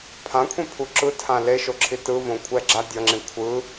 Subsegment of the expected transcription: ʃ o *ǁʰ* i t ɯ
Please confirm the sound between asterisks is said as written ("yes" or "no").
yes